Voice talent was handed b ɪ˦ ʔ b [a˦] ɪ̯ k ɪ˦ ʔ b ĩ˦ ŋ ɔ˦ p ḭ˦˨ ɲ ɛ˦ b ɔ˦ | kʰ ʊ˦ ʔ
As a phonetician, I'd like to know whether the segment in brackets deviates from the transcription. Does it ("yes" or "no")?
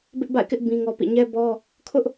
yes